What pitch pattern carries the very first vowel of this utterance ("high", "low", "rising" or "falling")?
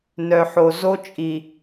low